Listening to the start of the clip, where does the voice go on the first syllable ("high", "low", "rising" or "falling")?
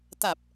low